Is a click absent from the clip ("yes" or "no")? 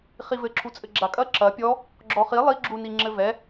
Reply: no